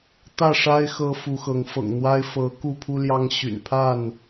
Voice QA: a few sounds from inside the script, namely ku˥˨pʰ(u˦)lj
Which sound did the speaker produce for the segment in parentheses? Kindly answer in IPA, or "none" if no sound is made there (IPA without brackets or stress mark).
u˦